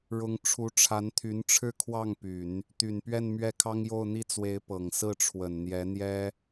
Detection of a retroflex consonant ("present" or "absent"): present